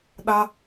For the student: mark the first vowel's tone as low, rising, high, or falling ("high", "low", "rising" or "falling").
high